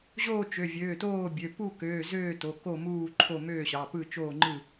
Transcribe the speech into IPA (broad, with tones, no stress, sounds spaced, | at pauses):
ʑ oː˥˨ t͡ʃ ø˩˧˩ vʲ øː˩˧˩ t oː˥˨ bʲ ø˩˧˩ p u˥˨ k øː˩˧˩ z øː˥˨ t o˩˧˩ k o˥˨ m uː˥˨ ǃʰ o˥˨ m øː˥˨ ɕ ɑ˩˧˩ p ɯ˥˨ t͡ʃ oː˥˨ ŋ͡ǃ ɯ˥˨